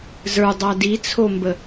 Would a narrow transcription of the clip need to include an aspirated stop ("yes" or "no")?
yes